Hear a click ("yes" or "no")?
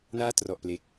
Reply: no